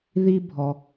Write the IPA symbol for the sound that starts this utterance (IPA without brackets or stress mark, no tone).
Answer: ð